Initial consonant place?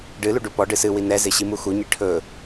retroflex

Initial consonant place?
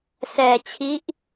alveolar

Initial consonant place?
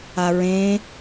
alveolar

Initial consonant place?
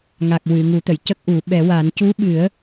velar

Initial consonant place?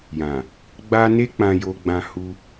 palatal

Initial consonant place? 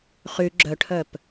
uvular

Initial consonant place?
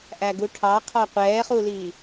glottal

